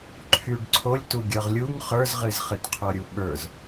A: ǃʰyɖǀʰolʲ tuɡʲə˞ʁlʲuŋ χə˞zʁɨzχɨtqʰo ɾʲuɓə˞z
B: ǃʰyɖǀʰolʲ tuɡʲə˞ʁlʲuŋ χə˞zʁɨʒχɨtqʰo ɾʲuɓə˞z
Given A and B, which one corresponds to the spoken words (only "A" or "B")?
A